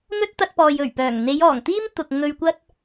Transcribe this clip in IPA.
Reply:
n̪ ɵ˥ t̚ t̪ ɐ˧ t̚ p ɔː˨ j ɵ˨˩ ɥ p œː˨˩ ŋ n̪ e˨˧ j ɔː˨˩ ŋ t̪ iː˥ m t̪ ʊ˨ k̚ ŋ ɵ˧ ɥ kʷ ɐ˥ t̚

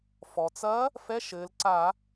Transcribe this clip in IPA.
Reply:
f ɔ˩ t͡s ɐ˧˥ | f ɛ˧˥˧ ʃ ɘː˩˧ l ǀ a˧˩˧

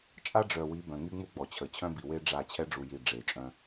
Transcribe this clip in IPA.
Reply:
t͡ʃʼ a˦ ɖ͡ʐ œ˨ w i˨˦ b œ̃˨ ŋ y˦ ŋ͡m u˦ ɡ͡b ɔ˨ t͡ɕʰ ə˨ t͡ɕʰ œ̃˦ b i˨ w e˦ ɖ͡ʐ a˦˨ t͡ɕʰ ɛ˦ ɖ͡ʐ u˨ j i˨ ɖ͡ʐ e˨ t͡ʃʼ œ̃˦

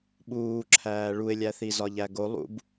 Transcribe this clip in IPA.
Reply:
ɓ uː ǁʰ æː ɭ u ɪ̯ lʲ æ θ i z ɒ ʎ æ ɡ o lˠ ṵ b

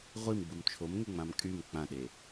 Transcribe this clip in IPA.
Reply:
ʁʷ i m ɡ͡b u m t͡ʃʰ o m ŋ e ŋ͡m ã m kʼ y m k͡p ã ɗ e

